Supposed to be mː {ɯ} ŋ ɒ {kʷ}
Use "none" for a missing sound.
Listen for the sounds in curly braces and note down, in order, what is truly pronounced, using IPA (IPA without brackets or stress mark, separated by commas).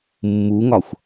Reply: u, xʷ